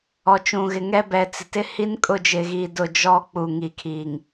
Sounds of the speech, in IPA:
ɔ˨t͡ʃũ˨ɣɪ˨ŋɛ˦ bɛ˨t͡sɪ˨tɪ˦ hi˦nkʼʊ˦˨d͡ʒɪ˨ɣiː˨ dʊ˦˨d͡ʒɔ˦ k͡pu˨ŋi˨kʰiː˨ŋ

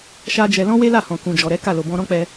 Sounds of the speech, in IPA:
ʃa˦d͡ʒɛ˧ lɔ̃˦ we˦la˦˨hɔ̃˨ kũ˨d͡ʒɔ˨ɾɛ˨˦ ka˦˨lo˨ bɔ̃˧ɾɔ̃˦k͡pɛ˧

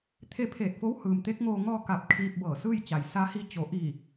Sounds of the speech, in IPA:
t̪ʰe˧pʰeː˧˩t̚fo˧˥w hɯː˩mt̪e˧˥k̚ŋoː˧ ŋɔː˧ ka˧p̚ kʰiː˧p̚bɤː˧˩sɯː˥˨jt͡ɕa˩j sa˧˥hi˧˥ t͡ɕo˩˧ ʔiː˧˩

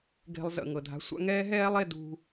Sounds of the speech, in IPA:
ɡe̤˧lˠzə̰˩ ŋɤ˩dʱa̤˧sʷa̰˥ ŋɛː˥ɦɛː˥lˠe˧ dṳ˧

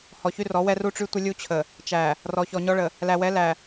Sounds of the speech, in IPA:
hɔ˨çy˦rɔ˨˦wɛ˦ ru˦ʈ͡ʂy˦tʷə˦ lʲu˦t͡ɕʰə˨ | t͡ʃæ˨ | rɔ˨ çɔ˨ɲɔ˦ɭə˨ | læ˨wɛ˨˦læ˨

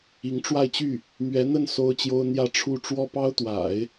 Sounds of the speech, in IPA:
i˧˥ŋʈ͡ʂwa˥˧ɪ̯t͡ɕy˥˩ | mɥɛ˧˥n̪ə˥˩n so˥ʊ̯t͡ɕjo˥ʊ̯ n̪jä˥˧ʈ͡ʂʰu˥˩ ʈ͡ʂwɔ˥pɑ˥ʊ̯t̪wa̰˨˩˦ɪ̯

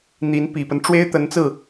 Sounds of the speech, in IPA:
n̪i˧˥npi˨˩pə˦n ʈ͡ʂwe˥ɪ̯t̪ə˧˥nt͡sɹ̩˥˩

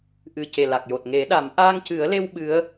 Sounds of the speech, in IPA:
ʔɨ˨˩ ce˨˩ la˨˩k̚jo˨˩t̚ ŋe˨˩˦ɗa˨˩˦m ʔaː˧ŋcɨ˨˩˦ə̯le˧w ɓɨ˧˥ə̯

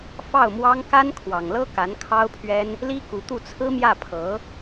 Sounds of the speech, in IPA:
fɑ˥˩ʊ̯mwɑ˥ŋ ka˥nkʰwɑ˨˩ŋlɤ˥ ka˧˥nkʰɑ˥ʊ̯pʰɥɛ˥n | li˥ku˧˥t̪u˥˩ t͡sʰɹ̩˥mjä˥˩pʰɤ˧˥

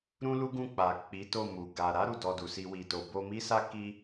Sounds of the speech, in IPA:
ɾũ˦lu˦ɡũ˦˨k͡pa˨ k͡pi˨˦to˦˨mu˨ ɡa˨ ɾa˨˦ ɾu˦˨dɔ˧du˨si˧ wi˨to˨ bo˧mi˦sa˦ ki˦

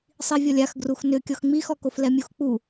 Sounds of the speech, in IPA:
sˤivʲɔlʲax ɡruxnʏ kʲɔxŋ͡mixɔkof lɛmʲuxk͡pu

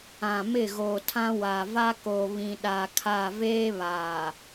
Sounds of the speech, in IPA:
ã˨mɪ˦˨ ɣoː˨tʰã˦ wa˨va˦ko˨ βĩ˨ɗa˨kʰa˦˨ veː˦ βaː˨

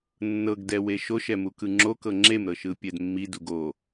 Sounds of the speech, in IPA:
nːɤɡ dɛweʃoʃ ɛmukɯŋ͡ǁo kɤŋ͡ǁem ɾɤʃɯpʲɛdmːi duɡo

